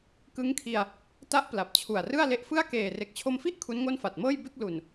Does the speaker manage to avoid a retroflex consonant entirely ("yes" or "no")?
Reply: yes